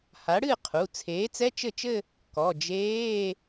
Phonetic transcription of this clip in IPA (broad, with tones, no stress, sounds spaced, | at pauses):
h a˩˥ ɽ ɨ˥˩ qʰ u˩˧˩ t͡sʰ eː˩˥ t͡s ɛ˧˥˧ t͡ʃ ɘ˥˩ t͡ʃ ɘ˥˧ | k ɔ˩˧˩ d͡ʒ eː˧˥˧